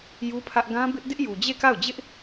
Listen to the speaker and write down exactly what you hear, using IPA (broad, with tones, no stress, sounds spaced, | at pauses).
j u˦ pʰ ä˦ ʔ ɡ ã˦ b ɪ˦ ʔ d ɪ˦ ʔ j u˨ d͡ʑ e˦˨ k a˦˨ ʊ̯ d͡ʑ ɪ˦ ʔ